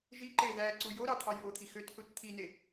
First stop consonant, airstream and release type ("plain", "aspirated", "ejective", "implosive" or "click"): click